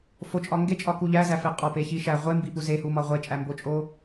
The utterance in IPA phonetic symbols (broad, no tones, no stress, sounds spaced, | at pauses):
f o t͡ʃʼ ɒ ŋ ɡ e t͡ʃʼ ɒ k u ʎ æ z æ f e qʼ ɒ p e ç i ʃ æ ʁʷ e m b i p u z e h u m ɒ ʁʷ e t͡ʃʼ æ m b o t͡ʃʼ o